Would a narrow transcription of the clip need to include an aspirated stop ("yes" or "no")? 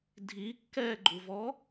no